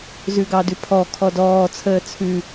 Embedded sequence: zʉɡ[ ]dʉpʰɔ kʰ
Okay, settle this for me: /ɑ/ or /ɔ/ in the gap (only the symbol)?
ɑ